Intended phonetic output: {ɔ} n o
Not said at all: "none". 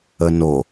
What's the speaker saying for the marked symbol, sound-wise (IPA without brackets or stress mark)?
ə